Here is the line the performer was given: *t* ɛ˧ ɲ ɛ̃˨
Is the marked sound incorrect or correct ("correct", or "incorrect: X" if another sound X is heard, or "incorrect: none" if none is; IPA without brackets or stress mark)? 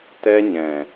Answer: correct